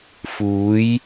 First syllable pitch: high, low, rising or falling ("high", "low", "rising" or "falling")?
rising